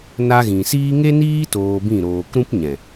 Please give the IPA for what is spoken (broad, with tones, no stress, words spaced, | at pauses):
na˧ɣĩ˨siː˦ ŋe˦niː˦ toː˧bĩ˦˨ ɾoː˨kɾũ˦pɲɛ̃˨